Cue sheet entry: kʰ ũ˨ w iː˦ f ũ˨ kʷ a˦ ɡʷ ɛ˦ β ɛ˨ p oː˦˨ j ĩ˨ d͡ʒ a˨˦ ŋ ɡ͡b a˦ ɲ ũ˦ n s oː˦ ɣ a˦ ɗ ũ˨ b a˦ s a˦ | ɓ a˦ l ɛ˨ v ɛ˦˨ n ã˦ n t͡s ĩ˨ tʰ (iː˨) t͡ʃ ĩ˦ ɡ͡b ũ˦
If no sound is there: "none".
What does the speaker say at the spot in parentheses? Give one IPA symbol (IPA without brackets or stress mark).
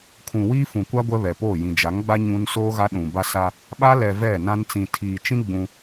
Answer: iː˨